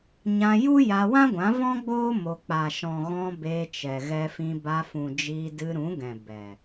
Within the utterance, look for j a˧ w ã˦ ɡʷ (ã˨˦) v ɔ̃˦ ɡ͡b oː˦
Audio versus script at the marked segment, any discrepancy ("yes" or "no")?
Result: no